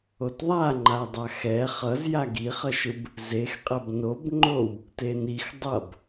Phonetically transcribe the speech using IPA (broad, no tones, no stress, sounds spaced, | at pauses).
o t ðˤ a ŋ͡ǃ a dˤ a x ɛ χ ʌ z j a ɡ i χ ʌ ʃ ɯ b | z e x qʼ ɛ b n o b ŋ͡ǃ o w | t e n i x dˤ ʌ b